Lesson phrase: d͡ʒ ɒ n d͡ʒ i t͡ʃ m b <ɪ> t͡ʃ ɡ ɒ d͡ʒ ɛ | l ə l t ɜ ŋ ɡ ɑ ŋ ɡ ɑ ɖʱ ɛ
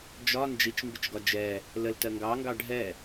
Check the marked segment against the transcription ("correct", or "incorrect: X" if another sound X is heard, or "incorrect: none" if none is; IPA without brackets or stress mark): correct